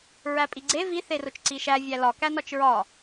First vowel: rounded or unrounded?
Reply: unrounded